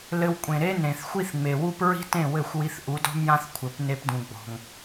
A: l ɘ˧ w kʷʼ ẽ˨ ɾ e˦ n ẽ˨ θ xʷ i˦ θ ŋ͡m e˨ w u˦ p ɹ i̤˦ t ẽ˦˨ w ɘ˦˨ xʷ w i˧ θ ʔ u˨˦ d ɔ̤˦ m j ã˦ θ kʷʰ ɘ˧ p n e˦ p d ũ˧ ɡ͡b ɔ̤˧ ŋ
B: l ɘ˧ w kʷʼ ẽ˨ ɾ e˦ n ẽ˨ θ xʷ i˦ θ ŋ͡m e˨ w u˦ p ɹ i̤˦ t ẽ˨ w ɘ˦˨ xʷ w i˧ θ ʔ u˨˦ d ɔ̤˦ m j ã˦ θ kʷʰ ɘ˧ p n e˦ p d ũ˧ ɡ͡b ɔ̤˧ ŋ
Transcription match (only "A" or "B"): A